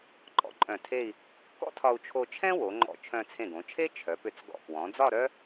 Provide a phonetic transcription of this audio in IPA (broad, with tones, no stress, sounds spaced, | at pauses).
ǃʼ ɔ̰˥˧ ǃʼ œ̃˧˩ tʰ e˥˧ i̯ | k ɔ̰˥ tʰ ɒ˧ u̯ t͡ʃʰ o˧ t͡ʃʰ ɛ̃˥ w o˩˧ ŋ͡ǃ ɔ̰˧˩ t͡ʃʰ œ̃˧ t͡sʰ ẽ˧˩ ɡ õ˩˧ t͡ʃʰ e˥ t͡ʃʰ œ˩˧ p ʏ˧˩ t͡s ɡ ɔ̰˧˩ k w ɔ̃˩˧ d͡z ɒ˥˧ ɾ œ˥